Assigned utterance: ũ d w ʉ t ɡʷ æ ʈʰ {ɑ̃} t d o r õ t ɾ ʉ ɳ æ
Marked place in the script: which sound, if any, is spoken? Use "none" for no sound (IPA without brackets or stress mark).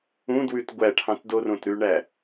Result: ɑ̃